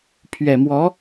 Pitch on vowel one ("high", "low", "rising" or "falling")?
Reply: low